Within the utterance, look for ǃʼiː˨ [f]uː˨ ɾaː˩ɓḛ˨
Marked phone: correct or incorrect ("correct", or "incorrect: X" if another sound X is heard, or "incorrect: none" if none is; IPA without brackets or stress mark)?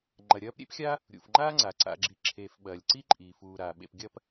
correct